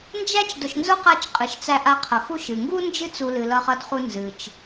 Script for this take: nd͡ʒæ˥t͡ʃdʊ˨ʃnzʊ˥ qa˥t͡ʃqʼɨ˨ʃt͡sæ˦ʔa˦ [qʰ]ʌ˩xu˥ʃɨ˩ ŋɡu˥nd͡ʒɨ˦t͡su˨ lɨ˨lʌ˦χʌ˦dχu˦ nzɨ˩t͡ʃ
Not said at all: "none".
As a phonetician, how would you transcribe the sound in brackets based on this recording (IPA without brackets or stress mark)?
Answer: qʰ